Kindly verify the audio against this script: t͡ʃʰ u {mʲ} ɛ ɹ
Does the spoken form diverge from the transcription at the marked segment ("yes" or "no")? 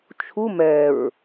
yes